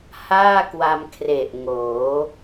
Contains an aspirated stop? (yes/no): yes